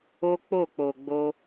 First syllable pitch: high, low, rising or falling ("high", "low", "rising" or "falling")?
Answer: high